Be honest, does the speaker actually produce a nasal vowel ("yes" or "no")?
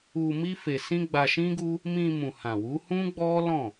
yes